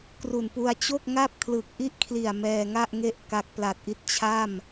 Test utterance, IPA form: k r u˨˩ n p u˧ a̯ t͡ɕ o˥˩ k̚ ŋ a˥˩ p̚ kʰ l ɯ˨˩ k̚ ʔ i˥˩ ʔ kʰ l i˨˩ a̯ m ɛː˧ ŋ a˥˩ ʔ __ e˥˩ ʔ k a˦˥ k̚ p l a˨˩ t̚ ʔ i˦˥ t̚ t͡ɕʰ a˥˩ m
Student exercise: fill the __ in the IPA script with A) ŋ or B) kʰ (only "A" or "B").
A